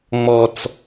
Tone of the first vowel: low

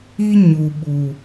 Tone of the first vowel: high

